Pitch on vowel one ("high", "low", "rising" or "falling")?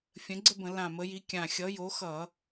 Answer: rising